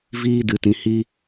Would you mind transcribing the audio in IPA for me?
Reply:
v iː˦ d ɨ˧ t ĩ˧ h i˦

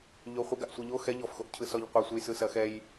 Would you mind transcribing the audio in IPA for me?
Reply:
ʎ o χʷ ɐ ɡ a ʔ sʷ ɛ ʎ o x ɛ ʎ ɔ f x o ʔ cʰ ɯ s ɔ ʎ qʷ ɐ sʷ ɯ j s ɯ s ɐ x ɛ j

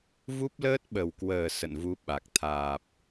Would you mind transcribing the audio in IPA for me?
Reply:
v u˦˥ p̚ l əː˦˥ t̚ ɓ ə˨˩ w k w əː˨˩ s ə̰˧˨ n v u˨˦ ɓ a˨˩ k̚ t̪ʰ aː˨˩ p̚

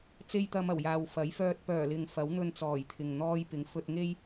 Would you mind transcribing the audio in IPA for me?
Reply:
t͡s e˥ j t̪ ɐ˧ m ɐ˨˩ w j aː˨ w f ɐ˨˥ j f œː˧ t̚ p œː˨˩ l ɪ˨ ŋ f ɐ˨˥ w n̪ ɵ˧ n t͡s ɔː˨˩ j t̪ʰ ɪ˨ ŋ n̪ ɔː˧ j p ɪ˨˥ ŋ f ɵ˧ t̚ ŋ e˥ j

